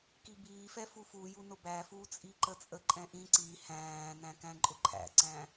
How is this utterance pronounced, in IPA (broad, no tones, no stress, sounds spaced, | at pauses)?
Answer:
k i b iː f ɛ f u f u j u n ʊ b æ f uː t͡sʼ i ǃ ə t͡sʼ ə ǃʼ ɛ̃ ʔ ĩ ǀ i h æ̃ː n æ̃ k æ̃ ǃʼ ʊ ǃʰ æ̰ ǀ æ̃